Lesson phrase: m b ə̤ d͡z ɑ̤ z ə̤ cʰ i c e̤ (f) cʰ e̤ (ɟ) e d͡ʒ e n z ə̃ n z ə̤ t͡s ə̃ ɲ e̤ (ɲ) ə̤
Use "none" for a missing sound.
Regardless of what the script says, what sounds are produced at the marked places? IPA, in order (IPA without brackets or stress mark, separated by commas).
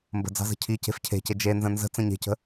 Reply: f, c, c